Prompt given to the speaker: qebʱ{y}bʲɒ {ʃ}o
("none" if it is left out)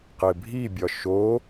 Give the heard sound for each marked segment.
i, ʃ

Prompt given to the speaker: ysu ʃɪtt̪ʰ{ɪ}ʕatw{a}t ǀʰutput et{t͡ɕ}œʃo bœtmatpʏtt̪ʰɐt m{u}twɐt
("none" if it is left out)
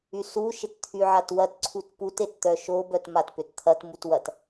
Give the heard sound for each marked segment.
y, ɐ, t̪, u

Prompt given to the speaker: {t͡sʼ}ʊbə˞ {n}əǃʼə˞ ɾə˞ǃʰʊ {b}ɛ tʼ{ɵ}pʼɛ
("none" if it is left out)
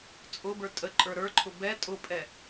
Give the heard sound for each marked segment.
t͡sʼ, tʼ, b, ʊ

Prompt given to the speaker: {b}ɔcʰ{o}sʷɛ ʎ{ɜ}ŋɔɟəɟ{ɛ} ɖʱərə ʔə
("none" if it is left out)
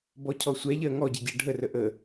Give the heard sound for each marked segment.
b, ɔ, ɜ, ɜ

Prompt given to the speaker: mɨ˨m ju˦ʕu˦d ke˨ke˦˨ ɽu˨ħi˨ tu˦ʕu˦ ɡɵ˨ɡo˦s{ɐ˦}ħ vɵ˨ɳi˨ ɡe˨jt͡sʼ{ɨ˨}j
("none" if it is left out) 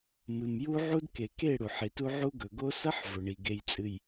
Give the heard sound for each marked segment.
ɐ˦, ɨ˨

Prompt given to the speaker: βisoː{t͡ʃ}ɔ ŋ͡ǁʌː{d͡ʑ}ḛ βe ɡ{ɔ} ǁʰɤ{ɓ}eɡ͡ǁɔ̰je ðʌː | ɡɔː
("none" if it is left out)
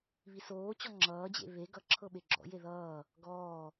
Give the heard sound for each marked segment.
t͡ɕ, d͡ʑ, ʌ, ɓ

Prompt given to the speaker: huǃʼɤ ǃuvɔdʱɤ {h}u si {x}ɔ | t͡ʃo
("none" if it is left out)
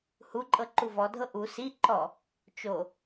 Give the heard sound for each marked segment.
ʔ, ǃ

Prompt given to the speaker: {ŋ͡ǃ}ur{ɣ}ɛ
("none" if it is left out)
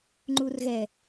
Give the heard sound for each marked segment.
ŋ͡ǃ, ɣ

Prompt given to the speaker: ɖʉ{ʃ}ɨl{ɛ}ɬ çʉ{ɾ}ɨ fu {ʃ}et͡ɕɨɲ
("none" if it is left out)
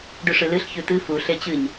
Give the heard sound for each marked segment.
ʂ, ɨ, t̪, ɬ

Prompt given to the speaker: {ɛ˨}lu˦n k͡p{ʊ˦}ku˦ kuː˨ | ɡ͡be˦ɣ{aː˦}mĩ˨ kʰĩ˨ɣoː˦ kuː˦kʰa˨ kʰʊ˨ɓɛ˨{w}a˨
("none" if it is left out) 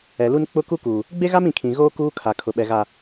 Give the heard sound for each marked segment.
ɛ˨, ʊ˦, a˦, ɣ

